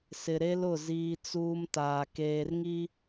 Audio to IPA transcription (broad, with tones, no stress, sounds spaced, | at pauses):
s ɪ˨ ɾ e˦ l ʊ˦˨ z iː˦ t͡s uː˦ m t aː˨ k eː˨ r ŋ i˦